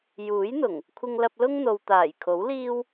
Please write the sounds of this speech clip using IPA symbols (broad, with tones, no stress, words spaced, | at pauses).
juː˨˥jn̪ʊ˨˩ŋ | kʷʰɪ˧ŋlɐ˧p̚lʊ˥ŋn̪o˨w t̪aː˨˩jkʰo˨˥wliː˥w